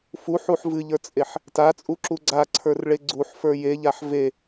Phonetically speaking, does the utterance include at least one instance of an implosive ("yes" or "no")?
no